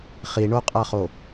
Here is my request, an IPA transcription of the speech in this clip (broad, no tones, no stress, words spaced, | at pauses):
χiɳoqʼaχo